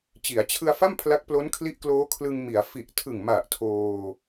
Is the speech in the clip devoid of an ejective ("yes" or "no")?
yes